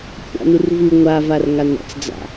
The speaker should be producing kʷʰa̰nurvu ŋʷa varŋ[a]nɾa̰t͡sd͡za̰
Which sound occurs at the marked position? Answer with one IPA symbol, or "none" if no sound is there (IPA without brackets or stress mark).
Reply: a